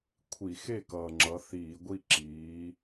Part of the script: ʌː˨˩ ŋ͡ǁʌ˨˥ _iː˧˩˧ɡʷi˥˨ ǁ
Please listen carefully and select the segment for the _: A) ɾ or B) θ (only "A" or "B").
B